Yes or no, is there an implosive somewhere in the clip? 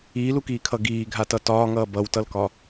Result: no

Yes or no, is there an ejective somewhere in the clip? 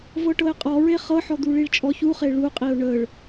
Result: yes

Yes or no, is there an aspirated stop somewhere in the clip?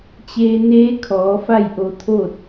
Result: yes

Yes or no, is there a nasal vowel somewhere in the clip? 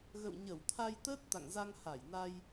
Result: no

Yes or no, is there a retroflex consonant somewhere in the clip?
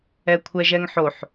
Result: no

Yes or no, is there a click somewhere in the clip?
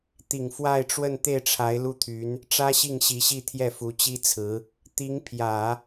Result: no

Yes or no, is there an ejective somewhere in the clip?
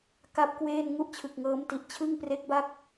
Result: no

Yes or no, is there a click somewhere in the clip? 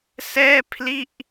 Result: no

